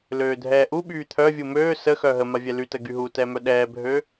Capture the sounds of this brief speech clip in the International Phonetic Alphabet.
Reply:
l øː dʱ ɛː ʔ u ɓ yː t̪ʰ œ vʲ u m øː s ə x œ ɦ ə m a vʲ ɛ l y t ə ɡ y ɦ u t ɛ m œ ɗ ɛː bʱ ø

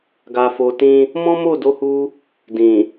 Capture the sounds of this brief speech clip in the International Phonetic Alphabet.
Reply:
ɡ a˧ f o˧ t ĩ˦ | m ɔ̃˦ m o˦˨ d o˧ h u˧ | d ĩ˨

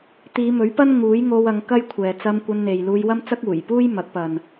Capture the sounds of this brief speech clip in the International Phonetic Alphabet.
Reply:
t̪ iː˨˧ m ɵ˨˥ ɥ p ɐ˥ n ŋ uː˨˥ j ŋ o˧ w ɐ˨˧ ŋ k ɐ˥ j kʷʰ ɛː˨ t͡s ɐ˧ m kʷ ɐ˧ n n̪ e˨ j l uː˧ j w ɐ˥ m t͡s ɐ˥ k̚ uː˨˩ j p uː˥ j m ɐ˨˥ k̚ p ɐ˨ n

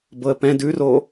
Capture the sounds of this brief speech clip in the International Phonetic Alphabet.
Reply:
b ɤ ə̯ p ɛ̃ d ʉ r o

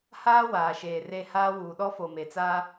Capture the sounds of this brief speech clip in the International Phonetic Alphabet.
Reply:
h aː˦ w aː˨ ʃ eː˨ r e˦˨ h aː˦ w uː˨ ɗ ɔ˦ f o˨ m e˨ t͡s aː˦

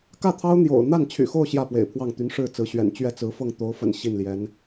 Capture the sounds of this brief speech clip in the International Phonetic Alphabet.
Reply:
k ä˥˩ t̪ʰ ɑ˥ ʊ̯ n̪ j o̰˨˩ ʊ̯ n̪ a˥˩ n t͡ɕʰ y̰˨˩ x o˥˧ ʊ̯ ɕ j ä˥˩ p w ḛ˨˩ ɪ̯ pʰ w ɑ˥˩ ŋ t̪ y˧˥ n ʂ ɻ̩˥˩ t͡s ɹ̩˧˥ ɕ ɥ ɛ̰˨˩ n t͡ɕ ɥ ɛ˥˩ t͡s ɹ̩˧˥ f ɤ˥˩ ŋ t̪ o˧˥ ʊ̯ f ə̰˨˩ n ɕ i˥˩ n l j ɛ˧˥ n

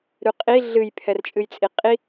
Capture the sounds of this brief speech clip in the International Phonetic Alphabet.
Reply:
ɾ ʉ qʼ i ɮ ɨ j pʰ ɛ r t͡ʃʼ ɨ j t͡sʼ i qʼ i

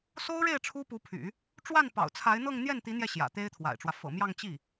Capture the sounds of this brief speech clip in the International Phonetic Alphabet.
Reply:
s o˥ ʊ̯ ɻ e˥˩ ɪ̯ ʈ͡ʂʰ u˥ p u˧˥ pʰ y̰˨˩˦ | ʈ͡ʂ w a˥˩ n p ɑ̰˨˩ ʊ̯ t͡sʰ a˧˥ ɪ̯ n̪ ɤ˥˧ ŋ n̪ j ɛ˥˩ n t̪ i˧˥ n̪ j ɛ˧ ɕ j ä̰˨˩ t̪ e˥ ɪ̯ t̪ʰ w a̰˨˩ ɪ̯ ʈ͡ʂ w ä˦ f ɤ̰˨˩ m j ɑ˥˧ ŋ t͡ɕ i˥˩

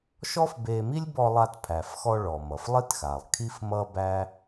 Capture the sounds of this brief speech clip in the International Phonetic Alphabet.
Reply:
ʃ ɔ˥ f b e˧ m i˥ lʲ b ɔ˧ lˠ a˧ t pʰ æ˩ f x ɔ˧ ɭ ɔ˩ m ʌ˩ f lˠ i˥ t x a˩ lˠ kʰ i˥ f m ʌ˥ b æ˥

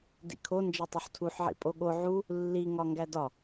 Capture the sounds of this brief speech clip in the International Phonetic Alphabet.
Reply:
d ḭ kʰ o n d͡ʒ e tˤ u ħ tʰ u ħ ʕ ḭ pʼ o ɠ o ʕ u | lː i ŋ ɒ ŋ ɡ æ d ɒ

